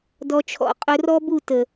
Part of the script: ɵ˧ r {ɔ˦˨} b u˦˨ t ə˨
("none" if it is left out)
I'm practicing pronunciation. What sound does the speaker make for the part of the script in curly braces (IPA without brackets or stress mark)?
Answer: ɔ˦